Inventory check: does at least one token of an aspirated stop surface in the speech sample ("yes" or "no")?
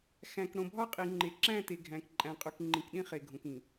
no